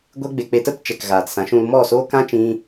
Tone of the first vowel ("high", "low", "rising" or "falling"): high